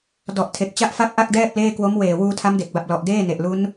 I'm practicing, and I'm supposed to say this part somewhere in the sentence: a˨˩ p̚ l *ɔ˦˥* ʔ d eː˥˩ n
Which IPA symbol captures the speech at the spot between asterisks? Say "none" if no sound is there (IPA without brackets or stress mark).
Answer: ɔ˨˩